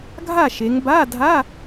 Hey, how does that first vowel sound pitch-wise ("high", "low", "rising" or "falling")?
falling